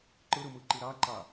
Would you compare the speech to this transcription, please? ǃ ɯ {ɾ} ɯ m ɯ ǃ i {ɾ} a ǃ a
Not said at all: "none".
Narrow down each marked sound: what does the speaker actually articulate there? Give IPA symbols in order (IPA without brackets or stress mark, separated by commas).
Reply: ɾ, ɾ